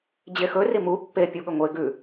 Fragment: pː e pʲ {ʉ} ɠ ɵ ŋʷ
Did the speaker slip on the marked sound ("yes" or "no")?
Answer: yes